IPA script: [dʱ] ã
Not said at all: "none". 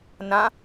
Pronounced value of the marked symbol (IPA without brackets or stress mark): n